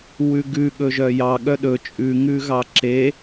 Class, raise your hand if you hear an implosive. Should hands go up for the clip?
yes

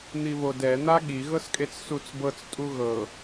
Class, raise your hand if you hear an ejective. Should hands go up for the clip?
yes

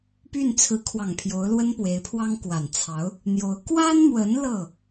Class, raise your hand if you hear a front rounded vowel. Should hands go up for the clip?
yes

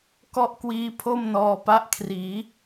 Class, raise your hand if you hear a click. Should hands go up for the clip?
no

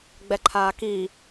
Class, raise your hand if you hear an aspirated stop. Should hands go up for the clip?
yes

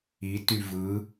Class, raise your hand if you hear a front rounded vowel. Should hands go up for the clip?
yes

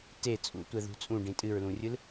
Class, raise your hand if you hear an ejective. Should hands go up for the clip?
yes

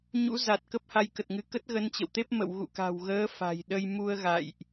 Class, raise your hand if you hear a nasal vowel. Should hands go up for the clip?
no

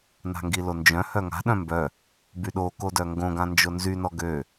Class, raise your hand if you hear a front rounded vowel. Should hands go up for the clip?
yes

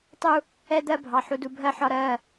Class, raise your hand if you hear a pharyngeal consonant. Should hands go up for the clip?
yes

